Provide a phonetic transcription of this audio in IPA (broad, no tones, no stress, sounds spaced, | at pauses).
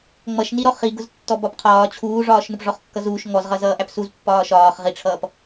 ŋ͡m ʌ ʃ n i ɾ ɔ χ i ɡ ʊ z tː ɔ b ɒ p qʰ ɒː t͡ɕʰ uː ʐ ɒː ʃ n ʊ p ʐ ɔ χ kː ʌ z uː ʃ ŋ ɔ z ʁ ʌ z ʌː ʔ æ p s u z pː ɒː ʃ ɒː χ ʁ i ʈ͡ʂʰ ʌː p